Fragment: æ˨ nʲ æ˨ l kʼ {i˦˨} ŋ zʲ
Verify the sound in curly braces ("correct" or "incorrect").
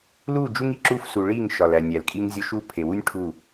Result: incorrect